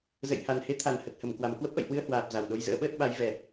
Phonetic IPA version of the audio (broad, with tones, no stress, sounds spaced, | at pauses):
z ə̰˧˨ j h a˨˩ n h e˨˦ t̪ʰ a˨˩ n h ə˨˩ t̚ h ə˧˩ m k w a˧˩ m k w ə˦˥ p̚ ʔ ə̰˧˨ j h w ɨ˧ ə̯ h w aː˨˩ p̚ z a˨˩ w ɗ o˧ j z ə̰ː˧˥ ɓ əː˦˥ t̚ ɓ a˨˦ j v ɛ˨˩